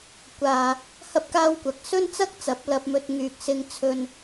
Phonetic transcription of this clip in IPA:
kʷ aː˧ | h ɐ˥ p̚ k aː˥ w kʷ ɐ˧ k̚ s ɵ˥ n t͡s ɐ˥ k̚ t͡s ɐ˨˥ p̚ l ɐ˧ p̚ m ɵ˧ t̚ ŋ yː˨ k̚ s ɪ˧ ŋ t͡sʰ ɵ˧ n

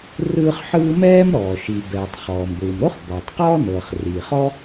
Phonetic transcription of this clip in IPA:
r ɯː˥ χ ħ ɯː˥ m ɛː˥ m ɾ ɔː˩ ʃ i˩ b ɛː˩ tˤ χ ɔː˩ m ɡʷ ɯː˩ m ɾ o˥ χ b ɔː˩ tˤ q ɔː˥ n ɤː˩ χ r iː˩ χ ɔ˥

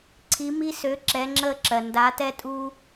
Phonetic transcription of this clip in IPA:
ǀʰ i˨˦ m i˦ s ø˨˦ ǁ ɛ˨˦ ŋ͡ǁ əː˦ ǁ ɜ˩ n d a˨˦ t ɛ˦ tʼ uː˦

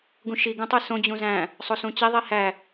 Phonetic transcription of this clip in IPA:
ɡ ũ ʃ i ɡ ũ tˤ e s õ d͡ʑ ũ z æ̃ | sˤ o s ũ t͡ɕ i ðˤ i h æ

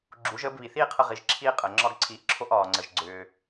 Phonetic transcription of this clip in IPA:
ɡ͡ǁ u˩˥ ʒ əː˩˥ b β i˩ θ iː˥ qʰ ə˧ ʁ i˩˥ ʒ ǁʰ iː˥ qʼ əː˩ ŋ͡ǁ ɒ˥ ɡ ǀʰ iː˧ ʔ ǁʰ o˥ ʔ ɒː˩ ŋ͡ǀ ə˩ ʒ ɡ͡ǀ ʏː˩

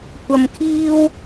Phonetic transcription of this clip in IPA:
kʷ ɐ˧ m kʰ iː˥ w

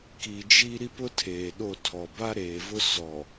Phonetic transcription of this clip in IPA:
k i˨ d͡ʒ i˦ ɾ i˦ p ʊ˦ tʰ eː˨ ɗ o˦˨ tʰ ɔ˨ b a˦ ɾ eː˨ v ʊ˦ s ɔ˨

